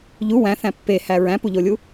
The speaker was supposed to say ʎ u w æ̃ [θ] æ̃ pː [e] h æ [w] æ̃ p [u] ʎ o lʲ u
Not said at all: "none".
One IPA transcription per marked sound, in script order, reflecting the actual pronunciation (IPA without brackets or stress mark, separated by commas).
θ, e, ɹ, u